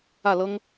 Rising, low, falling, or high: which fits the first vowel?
falling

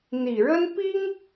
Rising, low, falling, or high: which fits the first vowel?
low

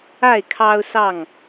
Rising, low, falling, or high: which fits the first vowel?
falling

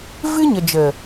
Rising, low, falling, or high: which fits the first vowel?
high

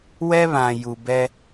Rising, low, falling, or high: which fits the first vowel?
high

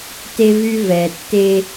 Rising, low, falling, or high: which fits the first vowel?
high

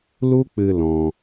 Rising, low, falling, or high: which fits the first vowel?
high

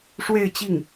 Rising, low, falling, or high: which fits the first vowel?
falling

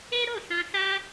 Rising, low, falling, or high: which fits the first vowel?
high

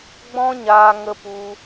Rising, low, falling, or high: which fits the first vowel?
high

